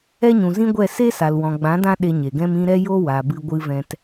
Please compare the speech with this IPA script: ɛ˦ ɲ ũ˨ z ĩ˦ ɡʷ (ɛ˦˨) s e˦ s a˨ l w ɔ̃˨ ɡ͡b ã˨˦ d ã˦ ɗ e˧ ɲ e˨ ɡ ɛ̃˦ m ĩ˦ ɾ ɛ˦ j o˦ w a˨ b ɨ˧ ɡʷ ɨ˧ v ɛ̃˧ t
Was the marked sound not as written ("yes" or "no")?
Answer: no